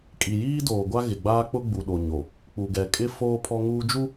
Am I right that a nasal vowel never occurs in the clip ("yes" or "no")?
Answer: yes